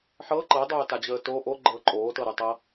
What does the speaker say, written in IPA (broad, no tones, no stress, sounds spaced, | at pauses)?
ħ ɤ ǃ ɤ dˤ oː t a d͡ʑ əː t o ʔ o ɡ͡ǃ ɤː ǃʼ oː t ɤ ɾ ɨ tˤ ɤ